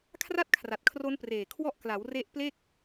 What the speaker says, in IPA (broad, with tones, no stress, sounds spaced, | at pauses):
kʰ r a˥˩ t̚ kʰ r a˨˩ t̚ kʰ r o˦˥ n p r eː˨˩ kʰ w ɔ˦˥ ʔ k l a˩˦ w r e˦˥ ʔ p l e˥˩ k̚